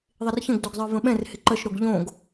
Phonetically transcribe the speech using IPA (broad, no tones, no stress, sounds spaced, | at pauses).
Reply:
ðˤ ɪ r ç ə̃ ɡ d o ɡ zˤ ə˞ v ə̃ ɓ ɛ̃ r h ɪ ǃ ə ʃ ɾ o ɡ ʎ õ ɡ